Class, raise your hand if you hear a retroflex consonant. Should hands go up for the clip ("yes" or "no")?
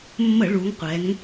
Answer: yes